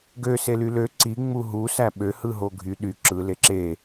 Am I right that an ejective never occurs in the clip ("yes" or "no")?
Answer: yes